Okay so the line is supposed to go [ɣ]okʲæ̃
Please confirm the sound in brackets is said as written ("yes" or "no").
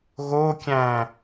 yes